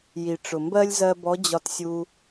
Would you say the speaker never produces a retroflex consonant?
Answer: no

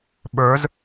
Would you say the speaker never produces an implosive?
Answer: no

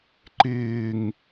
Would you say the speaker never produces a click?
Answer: no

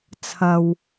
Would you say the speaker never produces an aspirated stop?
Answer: no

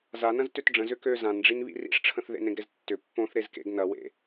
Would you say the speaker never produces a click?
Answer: yes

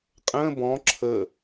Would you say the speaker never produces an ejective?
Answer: no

